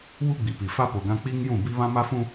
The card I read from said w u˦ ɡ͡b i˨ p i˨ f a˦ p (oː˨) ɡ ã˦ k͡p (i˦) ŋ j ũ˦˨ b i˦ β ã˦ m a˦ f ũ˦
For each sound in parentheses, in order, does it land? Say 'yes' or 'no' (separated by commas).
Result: no, yes